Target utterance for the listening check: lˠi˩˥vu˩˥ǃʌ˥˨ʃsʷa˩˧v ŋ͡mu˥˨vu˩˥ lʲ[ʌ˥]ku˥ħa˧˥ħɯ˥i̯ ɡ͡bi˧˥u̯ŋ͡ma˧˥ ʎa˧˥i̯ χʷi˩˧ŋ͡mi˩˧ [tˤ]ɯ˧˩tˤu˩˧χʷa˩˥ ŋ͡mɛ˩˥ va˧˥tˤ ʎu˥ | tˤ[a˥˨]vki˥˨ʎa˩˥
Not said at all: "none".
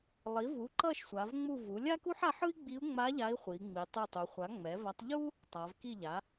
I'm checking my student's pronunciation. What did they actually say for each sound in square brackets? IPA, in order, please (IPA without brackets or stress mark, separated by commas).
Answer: a˥, tˤ, a˩˧